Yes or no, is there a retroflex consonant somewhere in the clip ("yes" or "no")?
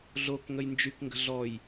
no